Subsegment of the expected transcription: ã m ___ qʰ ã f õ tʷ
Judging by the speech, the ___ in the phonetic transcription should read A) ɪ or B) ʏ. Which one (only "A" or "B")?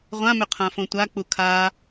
B